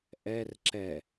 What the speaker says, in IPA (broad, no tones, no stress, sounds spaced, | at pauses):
ʔ ɛ r ǁ ɛ